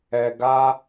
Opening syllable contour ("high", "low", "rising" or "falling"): low